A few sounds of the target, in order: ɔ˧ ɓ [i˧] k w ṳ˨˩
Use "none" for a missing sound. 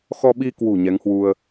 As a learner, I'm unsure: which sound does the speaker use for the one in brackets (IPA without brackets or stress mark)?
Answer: i˧